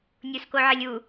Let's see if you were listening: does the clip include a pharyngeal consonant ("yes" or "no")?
yes